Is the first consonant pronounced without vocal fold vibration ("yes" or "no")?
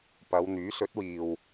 yes